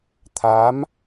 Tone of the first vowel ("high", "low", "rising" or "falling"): rising